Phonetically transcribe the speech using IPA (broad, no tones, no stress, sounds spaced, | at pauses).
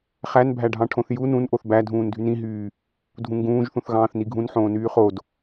χ æ n bʱ æ ɖʱ ɑ̃ ʈʰ õ θ j u n ũ n ʔ o θ b æ dʱ ũː n dʱ y n ĩ ɦ yː | dʱ ũ ŋ ɡ ũː ʒ θ ũ θ ɣ ɑ̃ː θ n i ɡʱ ũ n ħ õː n yː χ o d